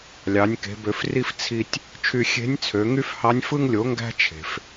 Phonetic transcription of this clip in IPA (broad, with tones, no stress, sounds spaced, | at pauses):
lʲ ɑ˩˧ nʲ k e̤˩˧ b ø˩˧ f r i˧ f t͡sʰ i˧ tʲ | t͡ʃʰ y˧ xʲ e̤˧˥ nʲ t͡sʰ ø˩˧ ŋ y˥ f h ɑ˧˥ nʲ f ɯ˧ ŋ lʲ o˩˧ ŋ ɡ æ̤˥ t͡ʃʰ e̤˩ f